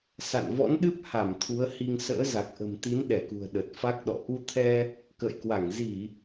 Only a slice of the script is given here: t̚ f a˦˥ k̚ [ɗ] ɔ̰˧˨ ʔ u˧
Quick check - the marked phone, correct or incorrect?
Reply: correct